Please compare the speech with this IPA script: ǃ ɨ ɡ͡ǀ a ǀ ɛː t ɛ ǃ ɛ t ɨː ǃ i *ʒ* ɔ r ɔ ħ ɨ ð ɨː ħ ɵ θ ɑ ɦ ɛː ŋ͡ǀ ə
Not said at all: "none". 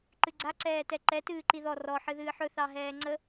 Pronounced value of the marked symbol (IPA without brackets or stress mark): ð